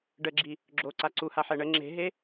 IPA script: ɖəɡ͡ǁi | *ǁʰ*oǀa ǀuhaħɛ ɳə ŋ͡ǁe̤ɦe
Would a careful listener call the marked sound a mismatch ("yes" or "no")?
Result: yes